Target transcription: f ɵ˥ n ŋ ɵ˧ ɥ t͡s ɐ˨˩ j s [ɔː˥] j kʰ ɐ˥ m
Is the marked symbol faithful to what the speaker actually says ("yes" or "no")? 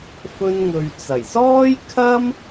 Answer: yes